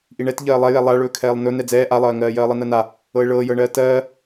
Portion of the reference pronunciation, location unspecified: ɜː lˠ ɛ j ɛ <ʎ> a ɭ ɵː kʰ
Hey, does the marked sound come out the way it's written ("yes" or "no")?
no